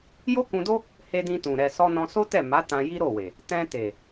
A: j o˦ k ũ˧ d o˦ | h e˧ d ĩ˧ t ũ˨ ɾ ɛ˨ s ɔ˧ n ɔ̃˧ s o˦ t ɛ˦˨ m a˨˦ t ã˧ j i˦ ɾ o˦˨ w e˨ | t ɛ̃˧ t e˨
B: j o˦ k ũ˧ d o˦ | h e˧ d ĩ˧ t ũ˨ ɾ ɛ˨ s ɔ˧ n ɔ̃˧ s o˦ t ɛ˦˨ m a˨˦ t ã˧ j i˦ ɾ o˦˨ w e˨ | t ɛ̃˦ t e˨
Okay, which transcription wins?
A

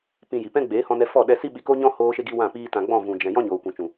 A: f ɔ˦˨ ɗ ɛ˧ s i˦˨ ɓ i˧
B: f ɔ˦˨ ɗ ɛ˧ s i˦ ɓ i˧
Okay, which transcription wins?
B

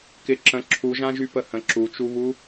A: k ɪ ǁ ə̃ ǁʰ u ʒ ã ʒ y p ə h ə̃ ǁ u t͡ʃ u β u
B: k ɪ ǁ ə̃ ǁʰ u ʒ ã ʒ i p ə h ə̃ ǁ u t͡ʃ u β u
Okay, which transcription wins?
A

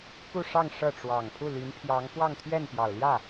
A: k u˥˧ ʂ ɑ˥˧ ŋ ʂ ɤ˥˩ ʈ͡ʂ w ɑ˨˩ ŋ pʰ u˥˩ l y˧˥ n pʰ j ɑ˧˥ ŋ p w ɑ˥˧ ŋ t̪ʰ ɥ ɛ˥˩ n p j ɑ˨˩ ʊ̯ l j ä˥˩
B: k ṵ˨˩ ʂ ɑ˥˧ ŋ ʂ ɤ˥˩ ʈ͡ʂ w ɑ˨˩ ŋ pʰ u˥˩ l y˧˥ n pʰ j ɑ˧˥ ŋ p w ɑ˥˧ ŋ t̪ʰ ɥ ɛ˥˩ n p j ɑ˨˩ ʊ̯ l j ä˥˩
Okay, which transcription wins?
A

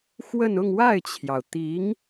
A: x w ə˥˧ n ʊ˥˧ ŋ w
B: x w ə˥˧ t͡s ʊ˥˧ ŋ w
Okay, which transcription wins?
A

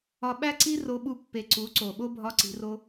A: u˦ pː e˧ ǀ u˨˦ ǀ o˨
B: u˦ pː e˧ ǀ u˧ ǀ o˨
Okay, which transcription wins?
A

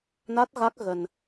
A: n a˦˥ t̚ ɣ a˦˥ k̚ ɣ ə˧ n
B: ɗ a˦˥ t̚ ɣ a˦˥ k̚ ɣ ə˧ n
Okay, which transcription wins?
A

